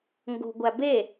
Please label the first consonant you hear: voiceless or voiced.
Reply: voiced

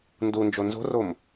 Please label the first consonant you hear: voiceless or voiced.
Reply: voiced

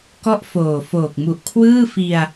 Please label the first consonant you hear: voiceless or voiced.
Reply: voiceless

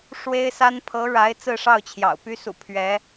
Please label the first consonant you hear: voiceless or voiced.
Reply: voiceless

